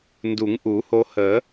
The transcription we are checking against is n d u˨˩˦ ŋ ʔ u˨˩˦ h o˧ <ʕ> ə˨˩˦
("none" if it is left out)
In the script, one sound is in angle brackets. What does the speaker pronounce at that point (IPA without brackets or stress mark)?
h